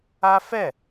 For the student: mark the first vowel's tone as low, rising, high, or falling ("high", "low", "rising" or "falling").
high